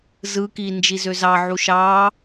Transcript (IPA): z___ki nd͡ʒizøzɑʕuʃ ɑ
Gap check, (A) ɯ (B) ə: A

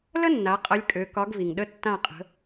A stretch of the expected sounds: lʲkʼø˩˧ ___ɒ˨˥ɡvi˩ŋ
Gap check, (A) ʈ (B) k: B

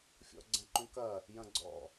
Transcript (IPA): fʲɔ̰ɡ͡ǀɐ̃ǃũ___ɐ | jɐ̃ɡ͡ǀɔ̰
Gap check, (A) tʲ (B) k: B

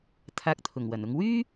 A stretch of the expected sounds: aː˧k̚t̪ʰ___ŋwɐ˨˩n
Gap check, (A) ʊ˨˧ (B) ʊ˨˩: B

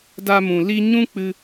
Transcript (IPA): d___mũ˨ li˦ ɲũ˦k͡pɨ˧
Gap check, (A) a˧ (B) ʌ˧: A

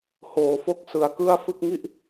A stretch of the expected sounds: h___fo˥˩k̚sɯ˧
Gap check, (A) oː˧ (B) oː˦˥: A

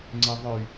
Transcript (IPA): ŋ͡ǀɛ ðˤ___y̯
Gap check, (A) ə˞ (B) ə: A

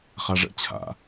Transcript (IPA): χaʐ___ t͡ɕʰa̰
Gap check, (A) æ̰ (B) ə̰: B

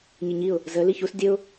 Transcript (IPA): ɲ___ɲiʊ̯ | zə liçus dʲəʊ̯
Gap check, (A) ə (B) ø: A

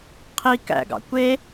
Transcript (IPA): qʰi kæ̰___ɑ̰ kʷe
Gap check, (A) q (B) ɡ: B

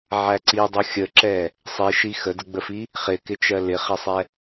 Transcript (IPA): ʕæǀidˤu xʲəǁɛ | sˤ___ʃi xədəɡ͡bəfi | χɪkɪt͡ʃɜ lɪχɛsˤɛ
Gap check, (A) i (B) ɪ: A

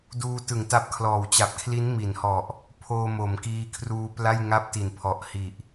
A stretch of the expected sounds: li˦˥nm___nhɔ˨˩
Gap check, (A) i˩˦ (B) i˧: A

